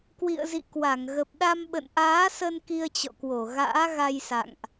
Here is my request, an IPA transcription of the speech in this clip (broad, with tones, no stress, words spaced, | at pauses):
kwḭ˧˨ə̯zḭ˧˨kwa˧˩ŋ ɣə˨˩p̚ɗa˧mɓə̰˧˨n ʔaː˨˦sə˧n ki˧ə̯t͡ɕɔ̰˧˨kwo˧˩ ɣa̰ː˧˥ɣa˧jsa̰˧˨ŋʔ